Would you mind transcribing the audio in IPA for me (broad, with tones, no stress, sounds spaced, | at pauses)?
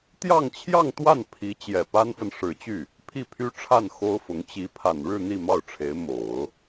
t̪ j ɑ˥˧ ŋ t͡ɕʰ j ɑ˥˧ ŋ t̪ w a˥˩ n pʰ i˧˥ t͡ɕ j ɛ˨˩ p a˥ n f ə˨ n ʂ ɻ̩˨˩ t͡ɕ y˥˩ | pʰ i˥˩ pʰ y˥ ʈ͡ʂʰ a˥˩ n x o˥ ʊ̯ f ʊ˧˥ ŋ t͡ɕ i˧˥ pʰ a˨˩ n ɻ ɻ̩˥˧ n̪ i˥˧ m ɑ˥˩ ʊ̯ ʈ͡ʂʰ e˧˥ ɪ̯ m o˨˩˦ ʊ̯